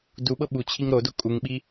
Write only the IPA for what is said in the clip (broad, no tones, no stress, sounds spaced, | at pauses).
d u ɓ ɤ ɓ u t͡ɕʰ i ŋ ɾ o d o kʼ u ŋ ɓ i